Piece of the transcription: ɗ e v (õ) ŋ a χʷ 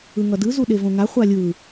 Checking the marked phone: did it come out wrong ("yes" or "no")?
no